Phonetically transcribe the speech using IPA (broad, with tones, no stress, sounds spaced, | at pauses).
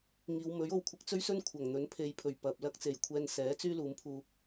ŋ iː˨˧ w m ɵ˨˥ ɥ o˨ w kʷʰ ɪ˧ k̚ t͡s ɵ˥ ɥ s ɵ˥ n kʷʰ ɐ˨˩ ŋ n̪ ɵ˨˥ n pʰ e˨˧ j pʰ ɵ˨˩ ɥ p ɐ˨ p̚ l ɐ˥ k̚ t͡s e˨˩ j kʷʰ ɛː˧ n s ɛː˨˥ t͡s yː˥ l uː˨˧ m pʰ uː˧